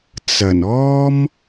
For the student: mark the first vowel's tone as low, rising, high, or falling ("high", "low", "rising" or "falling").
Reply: low